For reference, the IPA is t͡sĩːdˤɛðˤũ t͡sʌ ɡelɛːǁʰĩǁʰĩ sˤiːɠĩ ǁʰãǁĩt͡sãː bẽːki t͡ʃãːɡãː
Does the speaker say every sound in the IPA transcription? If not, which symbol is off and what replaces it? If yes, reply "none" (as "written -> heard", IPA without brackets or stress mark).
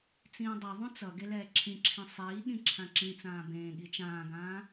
k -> ɠ